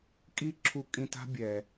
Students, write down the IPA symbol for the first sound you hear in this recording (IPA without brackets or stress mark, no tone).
kʼ